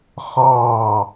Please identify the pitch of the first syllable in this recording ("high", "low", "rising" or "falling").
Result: falling